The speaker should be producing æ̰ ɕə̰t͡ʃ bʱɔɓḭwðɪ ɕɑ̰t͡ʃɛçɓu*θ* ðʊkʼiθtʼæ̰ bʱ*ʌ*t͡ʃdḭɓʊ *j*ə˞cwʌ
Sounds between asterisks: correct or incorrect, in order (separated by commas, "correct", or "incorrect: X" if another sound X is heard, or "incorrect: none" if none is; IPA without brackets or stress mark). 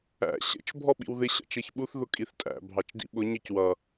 correct, incorrect: ɑ, incorrect: ɲ